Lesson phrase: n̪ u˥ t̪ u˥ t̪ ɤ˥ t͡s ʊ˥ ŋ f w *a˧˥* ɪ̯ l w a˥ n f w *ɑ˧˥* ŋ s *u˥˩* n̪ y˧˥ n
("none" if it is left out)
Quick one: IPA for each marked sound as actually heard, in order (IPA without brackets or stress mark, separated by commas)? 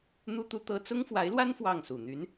a˧˥, ɑ˥˩, u˨˩